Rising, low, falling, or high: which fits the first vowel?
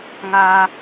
high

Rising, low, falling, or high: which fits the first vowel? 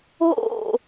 falling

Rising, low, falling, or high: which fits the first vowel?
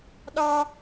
low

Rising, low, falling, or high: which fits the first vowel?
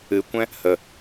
rising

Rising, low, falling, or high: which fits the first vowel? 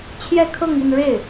falling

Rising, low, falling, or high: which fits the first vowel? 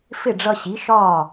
falling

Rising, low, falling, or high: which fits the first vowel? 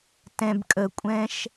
low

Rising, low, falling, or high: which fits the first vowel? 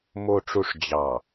low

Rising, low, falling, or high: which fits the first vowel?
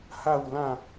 falling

